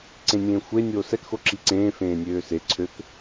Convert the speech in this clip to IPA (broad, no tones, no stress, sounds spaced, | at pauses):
ǀ ẽ nʲ ẽː xʷ e nʲ oː s ɛ k x o ǁ i ǀ ẽː f ẽː nʲ øː s e ǀʰ ø k